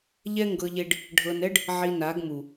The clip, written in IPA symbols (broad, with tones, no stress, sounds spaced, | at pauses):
ʎ ɛ˦ ŋ ɡ ɤ˧ ʎ e˧ ɖ | ɖʱ ɤ˧ n ɛ˦ ɖ | ʕ i˧ n a˨˦ ɡ m u˨